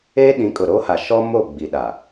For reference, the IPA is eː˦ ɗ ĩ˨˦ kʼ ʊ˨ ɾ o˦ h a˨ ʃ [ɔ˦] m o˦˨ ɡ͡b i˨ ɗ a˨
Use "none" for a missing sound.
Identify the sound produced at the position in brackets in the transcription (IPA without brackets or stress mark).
ɔ˦